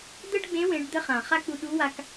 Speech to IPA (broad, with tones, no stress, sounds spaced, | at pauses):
d̪ ə˥ ɖ ɡ͡b ẽ˧˥ w ẽ˩˧ ɖ d̪ ə˧ χ ã˩ χ a˥ k͡p u˧ ɗ u˧˥ w a˧ k